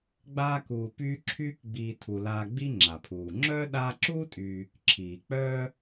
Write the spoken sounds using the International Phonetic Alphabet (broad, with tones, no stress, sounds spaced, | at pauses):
ɡ͡b aː˦ k uː˨ p yː˦ ǁʰ yː˦ k ɡ͡b iː˨ tʰ u˩ l aː˨ ɡ͡b i˦ ŋ͡ǁ a˩ pʰ uː˩ ŋ͡ǁ œː˥ ɗ aː˦ ǁ uː˥ tʼ yː˨ | ǁʰ iː˩ k͡p œː˥